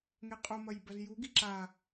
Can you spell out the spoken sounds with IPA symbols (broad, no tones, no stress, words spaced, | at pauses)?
ŋeqʼomɐj bɐzjuɡi ǁa